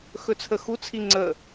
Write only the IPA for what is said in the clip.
x ɵ t͡sʰ ə x u t͡sʰ i ŋ͡ǀ ə

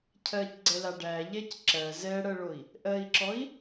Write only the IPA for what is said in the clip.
cʰ ɜ c ɡ͡ǀ ɛ l a ɖ æ ʎ ɛ c ǁ ɜ z ɛ ɽ ɜ ɭ o i̯ | ʔ ɜ i̯ ǁ ɔ i̯

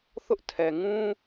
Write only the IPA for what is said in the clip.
θ ʊ˦ ʔ tʰ ɛ˨ ŋ ũ˦

